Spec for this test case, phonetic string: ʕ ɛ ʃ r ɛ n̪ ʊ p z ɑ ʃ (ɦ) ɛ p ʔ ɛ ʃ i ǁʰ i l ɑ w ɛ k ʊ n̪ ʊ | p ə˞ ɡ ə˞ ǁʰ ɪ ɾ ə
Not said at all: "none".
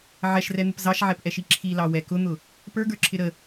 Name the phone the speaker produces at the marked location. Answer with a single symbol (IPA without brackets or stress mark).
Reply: ʕ